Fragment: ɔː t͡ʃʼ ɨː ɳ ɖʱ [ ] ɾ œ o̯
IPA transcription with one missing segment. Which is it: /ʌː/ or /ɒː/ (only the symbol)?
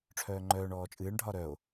ɒː